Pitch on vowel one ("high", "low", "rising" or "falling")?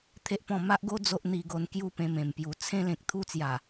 high